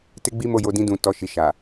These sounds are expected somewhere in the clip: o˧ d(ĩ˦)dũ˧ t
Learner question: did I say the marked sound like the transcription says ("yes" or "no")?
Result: yes